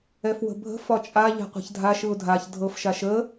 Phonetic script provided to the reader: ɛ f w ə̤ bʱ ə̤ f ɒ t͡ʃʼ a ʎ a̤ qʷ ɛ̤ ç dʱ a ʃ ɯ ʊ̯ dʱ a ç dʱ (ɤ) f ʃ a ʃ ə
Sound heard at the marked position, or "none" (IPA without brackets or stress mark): ɤ